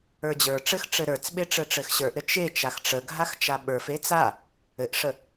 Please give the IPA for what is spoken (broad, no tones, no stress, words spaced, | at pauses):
ə˞d͡ʑə˞ʈ͡ʂɘx ʈ͡ʂɘɾə˞t͡sɓe ʈ͡ʂɘʈ͡ʂɘxɕə˞ʔɾɘ t͡ʃe t͡ʃaxʈ͡ʂəɡʱax t͡ʃaɓə˞fe t͡sa | ɘʔʂə